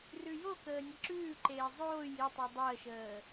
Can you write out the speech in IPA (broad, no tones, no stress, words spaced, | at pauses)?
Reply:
rʉjokəː nʲəǁʉːǃeː zˤoːj itˤu dˤəːʃəː